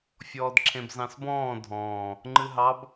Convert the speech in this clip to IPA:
fʲɔːdǁʰẽbzɑ̃sbɔ̃ː dʱɔ̃ː | ŋ͡ǃɨɦɑb

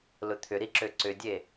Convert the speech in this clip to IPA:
lʊt̪ʰʏɾiǁø ǀʏdʲe

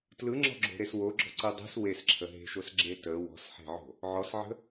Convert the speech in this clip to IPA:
tlɯŋ͡ǁɔ̤ɡ͡ǁo̤ɾes woɡ͡ǁɔ̤ǀɯ dˤe̤s wesǁʰə ɦe̤ʃosɡ͡ǁe tə wɔ̤sħe̤ʕo̤ | ʕɔsʕə̤

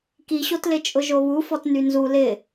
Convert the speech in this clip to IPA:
kiɕotlɪ t͡ʃʼʊʒoβu fɔtnynzu lɪ

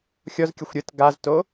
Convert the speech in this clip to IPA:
xʲɔzkʲəxʷ ɾʲət ɡazto

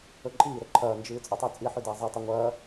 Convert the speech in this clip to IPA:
ɵǃʼiːɾɵ ǃʰɐːnd͡ʒɨː t͡sʼotˤʉt͡sʼiħʉ dɐːzˤitˤɵ ŋʷɐː

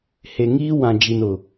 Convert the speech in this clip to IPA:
he˨ŋiː˦ wã˨d͡ʒi˨nʊ˨

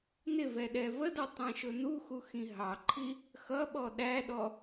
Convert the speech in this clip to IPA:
nɪvɛ ɗɛvədʌ tˤɛ̃ʃʊnuxu xĩɦɑǃʰi | xʌ ɓɔɗæɗɔ

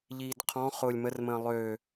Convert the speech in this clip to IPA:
ʎiːdqʰɔ̃ χʊːlʲmərmə̃ː lˠø

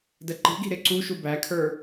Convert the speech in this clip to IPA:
dəǃi̤ɡi̤ ɾɪǀu ʃubækʰə˞

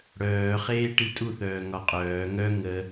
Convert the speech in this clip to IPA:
ɽœːχeːʈi tʼuθœːŋɒ qʼœː ŋœ ŋə

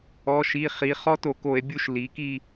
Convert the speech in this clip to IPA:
ɔ˩˧˩ʃi˩˧˩χi˩˧ χɔ˦˥to˧˩˧ko˧˩˧e̯bʲu˦˨ʃ li˩˧ki˦˨

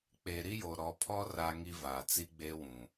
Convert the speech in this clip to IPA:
k͡pe˨ ɾi˦jo˨ ɾɔ˨pʰɔ˦ ra˦ŋi˦vaː˨t͡si˦ ɡ͡be˦wũ˨

